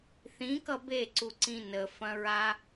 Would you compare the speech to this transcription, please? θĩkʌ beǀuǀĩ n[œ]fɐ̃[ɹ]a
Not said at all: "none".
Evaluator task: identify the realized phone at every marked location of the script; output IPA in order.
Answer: ə, ɹ

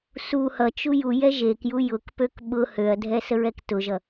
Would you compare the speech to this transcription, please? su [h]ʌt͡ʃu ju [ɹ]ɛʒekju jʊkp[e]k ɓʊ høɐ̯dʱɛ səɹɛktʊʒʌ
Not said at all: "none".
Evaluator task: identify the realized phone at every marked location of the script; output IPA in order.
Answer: h, j, ø

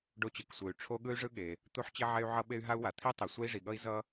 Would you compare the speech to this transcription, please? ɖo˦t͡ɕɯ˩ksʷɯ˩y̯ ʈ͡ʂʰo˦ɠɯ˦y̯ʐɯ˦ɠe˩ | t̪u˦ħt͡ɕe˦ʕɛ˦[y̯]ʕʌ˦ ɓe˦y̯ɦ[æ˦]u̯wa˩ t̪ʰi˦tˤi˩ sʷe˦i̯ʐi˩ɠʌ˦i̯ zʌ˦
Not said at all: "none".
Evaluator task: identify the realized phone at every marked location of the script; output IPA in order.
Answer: y̯, a˦

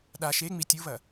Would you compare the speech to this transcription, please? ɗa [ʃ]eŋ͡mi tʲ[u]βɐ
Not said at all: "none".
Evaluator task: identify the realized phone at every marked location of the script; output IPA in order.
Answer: ʃ, u

